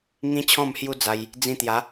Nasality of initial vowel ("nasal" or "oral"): nasal